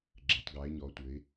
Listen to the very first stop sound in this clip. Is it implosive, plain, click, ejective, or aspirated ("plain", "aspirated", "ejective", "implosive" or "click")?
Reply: click